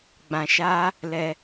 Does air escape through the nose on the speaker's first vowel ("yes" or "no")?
yes